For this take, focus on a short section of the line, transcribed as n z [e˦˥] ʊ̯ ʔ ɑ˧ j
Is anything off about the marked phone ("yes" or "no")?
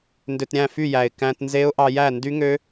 no